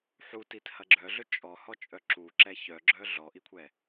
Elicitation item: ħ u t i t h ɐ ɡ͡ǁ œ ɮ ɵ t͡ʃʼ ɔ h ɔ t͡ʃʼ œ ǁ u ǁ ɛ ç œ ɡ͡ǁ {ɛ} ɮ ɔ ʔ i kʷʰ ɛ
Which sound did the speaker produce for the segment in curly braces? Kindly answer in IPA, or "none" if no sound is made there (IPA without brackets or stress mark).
œ